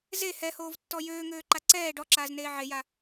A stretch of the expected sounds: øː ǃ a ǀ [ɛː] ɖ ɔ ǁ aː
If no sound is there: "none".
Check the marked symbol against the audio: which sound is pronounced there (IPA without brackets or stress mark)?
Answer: ɛː